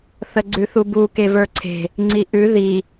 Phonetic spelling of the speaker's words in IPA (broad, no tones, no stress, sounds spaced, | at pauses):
θ ə ɡ͡ǀ ʉ θ u b u k e v ə˞ ǀʰ e̤ | ŋ͡ǀ i ʔ ʉ ð i